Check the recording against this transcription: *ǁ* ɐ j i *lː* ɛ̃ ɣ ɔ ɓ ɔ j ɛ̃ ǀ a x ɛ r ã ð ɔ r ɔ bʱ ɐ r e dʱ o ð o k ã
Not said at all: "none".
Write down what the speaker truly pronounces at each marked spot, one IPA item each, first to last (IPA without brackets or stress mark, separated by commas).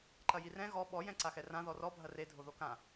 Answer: ǃ, r